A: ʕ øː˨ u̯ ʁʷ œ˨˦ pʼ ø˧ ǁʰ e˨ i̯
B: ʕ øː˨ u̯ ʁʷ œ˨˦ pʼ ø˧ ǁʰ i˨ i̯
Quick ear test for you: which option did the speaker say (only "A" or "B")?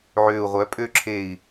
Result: A